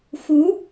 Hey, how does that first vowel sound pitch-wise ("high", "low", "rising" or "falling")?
rising